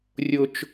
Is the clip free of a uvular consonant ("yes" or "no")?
yes